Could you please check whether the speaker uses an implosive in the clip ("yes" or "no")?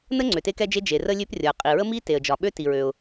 yes